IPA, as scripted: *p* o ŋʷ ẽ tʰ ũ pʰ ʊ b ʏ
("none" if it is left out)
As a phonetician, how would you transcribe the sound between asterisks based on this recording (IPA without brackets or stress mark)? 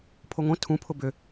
pʰ